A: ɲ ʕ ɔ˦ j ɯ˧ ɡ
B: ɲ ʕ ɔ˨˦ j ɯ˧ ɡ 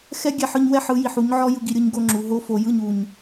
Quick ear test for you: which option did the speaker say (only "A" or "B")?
A